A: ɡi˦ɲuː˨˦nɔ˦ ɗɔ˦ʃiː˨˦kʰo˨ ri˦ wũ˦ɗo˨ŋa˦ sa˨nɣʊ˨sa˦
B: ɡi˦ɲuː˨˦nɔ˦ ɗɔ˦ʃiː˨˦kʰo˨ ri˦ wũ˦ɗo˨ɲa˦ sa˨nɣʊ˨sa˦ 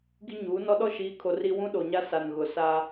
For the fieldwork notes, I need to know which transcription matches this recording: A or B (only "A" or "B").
B